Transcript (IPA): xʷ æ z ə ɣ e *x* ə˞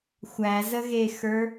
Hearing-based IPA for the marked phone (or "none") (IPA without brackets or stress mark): x